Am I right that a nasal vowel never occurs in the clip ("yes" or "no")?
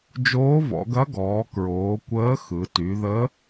yes